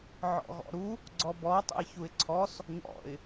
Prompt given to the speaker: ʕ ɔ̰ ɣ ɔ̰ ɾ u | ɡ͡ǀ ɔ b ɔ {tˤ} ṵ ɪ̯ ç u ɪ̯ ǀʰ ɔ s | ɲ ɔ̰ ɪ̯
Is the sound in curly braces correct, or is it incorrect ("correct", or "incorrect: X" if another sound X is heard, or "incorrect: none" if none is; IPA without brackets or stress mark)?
correct